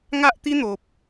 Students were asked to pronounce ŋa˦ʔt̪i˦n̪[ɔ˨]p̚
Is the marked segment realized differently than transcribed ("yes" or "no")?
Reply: yes